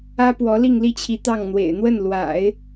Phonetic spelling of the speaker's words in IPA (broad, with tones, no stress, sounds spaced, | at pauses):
ä˥ p w ɔ˧˥ l i˥˧ ŋ l i˥˩ t͡ɕʰ i˧˥ t̪ ɑ˥˩ ŋ n̪ w ḛ˨˩ ɪ̯ n̪ w ə˥˩ n l w a̰˨˩˦ ɪ̯